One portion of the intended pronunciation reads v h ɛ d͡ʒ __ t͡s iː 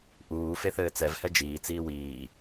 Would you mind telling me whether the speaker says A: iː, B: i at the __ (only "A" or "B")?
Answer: A